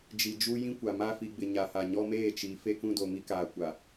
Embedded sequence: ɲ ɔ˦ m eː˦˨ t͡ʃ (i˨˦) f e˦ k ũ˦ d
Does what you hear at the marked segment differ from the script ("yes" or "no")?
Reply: no